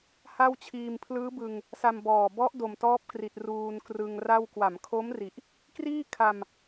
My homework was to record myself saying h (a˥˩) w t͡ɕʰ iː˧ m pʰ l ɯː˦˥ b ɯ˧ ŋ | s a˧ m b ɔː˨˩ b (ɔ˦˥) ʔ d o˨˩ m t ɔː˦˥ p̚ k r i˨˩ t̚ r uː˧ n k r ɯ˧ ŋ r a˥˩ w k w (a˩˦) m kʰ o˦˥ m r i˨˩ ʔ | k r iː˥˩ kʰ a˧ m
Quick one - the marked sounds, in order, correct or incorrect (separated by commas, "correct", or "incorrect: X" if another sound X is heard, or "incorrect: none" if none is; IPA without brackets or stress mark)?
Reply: correct, correct, correct